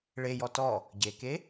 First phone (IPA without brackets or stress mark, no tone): ɭ